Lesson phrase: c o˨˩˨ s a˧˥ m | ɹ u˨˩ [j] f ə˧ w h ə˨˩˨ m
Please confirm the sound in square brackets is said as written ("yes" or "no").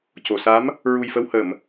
yes